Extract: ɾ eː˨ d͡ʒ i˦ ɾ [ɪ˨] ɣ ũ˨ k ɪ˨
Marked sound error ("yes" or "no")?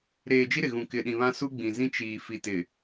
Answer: no